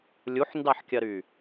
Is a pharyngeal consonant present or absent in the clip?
present